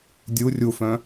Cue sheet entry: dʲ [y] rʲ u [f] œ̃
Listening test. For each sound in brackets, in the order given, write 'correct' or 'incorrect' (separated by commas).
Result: incorrect, correct